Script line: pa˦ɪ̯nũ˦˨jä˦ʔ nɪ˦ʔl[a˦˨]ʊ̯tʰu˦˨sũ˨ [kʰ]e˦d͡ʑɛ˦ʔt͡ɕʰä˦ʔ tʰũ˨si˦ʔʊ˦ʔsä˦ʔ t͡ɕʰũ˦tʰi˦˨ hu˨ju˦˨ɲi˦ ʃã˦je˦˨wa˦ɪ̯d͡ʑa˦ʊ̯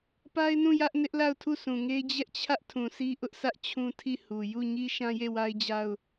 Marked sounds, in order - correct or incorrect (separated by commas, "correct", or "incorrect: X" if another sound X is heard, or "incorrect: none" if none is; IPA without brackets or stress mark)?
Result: correct, incorrect: ŋ